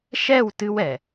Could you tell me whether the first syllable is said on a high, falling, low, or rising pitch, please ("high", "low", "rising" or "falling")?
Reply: falling